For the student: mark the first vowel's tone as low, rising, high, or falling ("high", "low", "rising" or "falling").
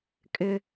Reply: high